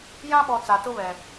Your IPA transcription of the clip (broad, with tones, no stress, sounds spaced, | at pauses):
j ã˦ ɓ ɔ˨ t͡s a˨ t ʊ˦ β ɛ˨